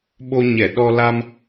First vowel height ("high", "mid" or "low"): mid